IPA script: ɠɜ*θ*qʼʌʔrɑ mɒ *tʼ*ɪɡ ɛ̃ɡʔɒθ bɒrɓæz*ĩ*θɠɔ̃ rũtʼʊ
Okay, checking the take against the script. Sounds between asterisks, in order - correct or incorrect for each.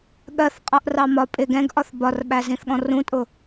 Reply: correct, incorrect: pʼ, correct

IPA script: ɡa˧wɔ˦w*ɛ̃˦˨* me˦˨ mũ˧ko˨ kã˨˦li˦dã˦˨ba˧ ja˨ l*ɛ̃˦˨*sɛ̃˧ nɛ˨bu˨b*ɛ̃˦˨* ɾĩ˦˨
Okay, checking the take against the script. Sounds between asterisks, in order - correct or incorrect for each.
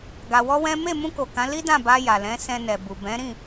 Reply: incorrect: ɛ̃˦, incorrect: ɛ̃˨˦, incorrect: ɛ̃˨˦

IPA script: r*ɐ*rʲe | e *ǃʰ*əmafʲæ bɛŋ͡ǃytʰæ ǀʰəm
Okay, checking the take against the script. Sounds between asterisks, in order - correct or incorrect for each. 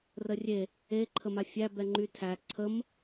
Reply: incorrect: ə, correct

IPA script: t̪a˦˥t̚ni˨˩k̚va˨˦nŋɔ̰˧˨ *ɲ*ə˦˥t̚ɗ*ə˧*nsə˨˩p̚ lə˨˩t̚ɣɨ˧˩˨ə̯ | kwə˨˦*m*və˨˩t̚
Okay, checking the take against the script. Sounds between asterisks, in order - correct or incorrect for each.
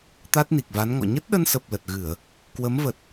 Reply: correct, correct, correct

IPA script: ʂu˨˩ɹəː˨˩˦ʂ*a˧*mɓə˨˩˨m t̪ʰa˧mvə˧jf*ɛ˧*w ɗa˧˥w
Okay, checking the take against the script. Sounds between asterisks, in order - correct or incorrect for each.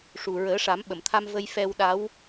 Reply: incorrect: a˨˩˦, correct

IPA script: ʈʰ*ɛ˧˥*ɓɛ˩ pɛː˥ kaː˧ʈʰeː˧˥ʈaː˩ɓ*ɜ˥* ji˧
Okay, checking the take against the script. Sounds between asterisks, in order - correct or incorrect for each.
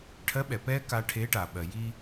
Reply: incorrect: ɜ˧˥, incorrect: ɜ˩

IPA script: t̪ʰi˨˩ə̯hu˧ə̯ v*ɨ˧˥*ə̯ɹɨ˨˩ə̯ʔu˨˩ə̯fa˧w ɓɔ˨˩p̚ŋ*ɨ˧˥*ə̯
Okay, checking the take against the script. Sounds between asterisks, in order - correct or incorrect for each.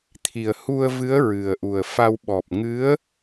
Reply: correct, correct

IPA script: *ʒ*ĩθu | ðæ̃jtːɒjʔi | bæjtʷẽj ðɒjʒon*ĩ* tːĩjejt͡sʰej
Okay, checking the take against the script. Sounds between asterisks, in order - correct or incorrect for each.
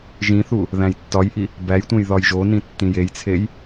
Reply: correct, correct

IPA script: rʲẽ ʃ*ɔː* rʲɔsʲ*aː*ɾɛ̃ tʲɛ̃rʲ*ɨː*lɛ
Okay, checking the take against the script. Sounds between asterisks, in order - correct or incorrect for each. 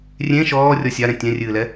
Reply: correct, incorrect: a, correct

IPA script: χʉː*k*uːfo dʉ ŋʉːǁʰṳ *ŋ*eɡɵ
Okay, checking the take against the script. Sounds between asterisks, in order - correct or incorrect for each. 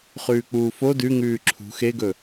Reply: incorrect: k͡p, incorrect: x

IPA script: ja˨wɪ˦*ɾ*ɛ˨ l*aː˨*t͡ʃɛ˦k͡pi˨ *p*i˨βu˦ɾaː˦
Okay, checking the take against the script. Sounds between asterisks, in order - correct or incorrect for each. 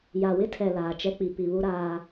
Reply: incorrect: tʰ, correct, correct

